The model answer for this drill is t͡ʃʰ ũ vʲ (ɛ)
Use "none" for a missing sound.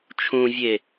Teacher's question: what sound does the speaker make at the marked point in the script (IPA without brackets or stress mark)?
e